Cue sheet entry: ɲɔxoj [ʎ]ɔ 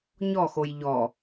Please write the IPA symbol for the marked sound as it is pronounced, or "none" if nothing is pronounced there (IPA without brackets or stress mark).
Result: ʎ